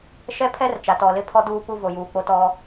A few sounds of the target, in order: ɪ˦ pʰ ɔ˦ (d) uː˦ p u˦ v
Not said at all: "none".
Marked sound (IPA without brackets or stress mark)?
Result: d